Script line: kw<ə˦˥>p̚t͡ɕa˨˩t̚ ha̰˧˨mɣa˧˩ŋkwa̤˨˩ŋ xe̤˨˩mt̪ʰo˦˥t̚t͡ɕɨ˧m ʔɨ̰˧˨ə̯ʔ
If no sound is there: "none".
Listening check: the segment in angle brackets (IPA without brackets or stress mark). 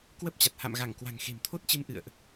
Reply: ə˦˥